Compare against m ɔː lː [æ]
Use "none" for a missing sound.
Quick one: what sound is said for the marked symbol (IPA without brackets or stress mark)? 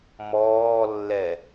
ɛ